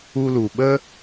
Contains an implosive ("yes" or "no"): yes